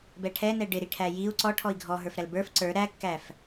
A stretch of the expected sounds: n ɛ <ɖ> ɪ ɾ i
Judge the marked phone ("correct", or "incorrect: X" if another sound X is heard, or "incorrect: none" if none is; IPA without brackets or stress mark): correct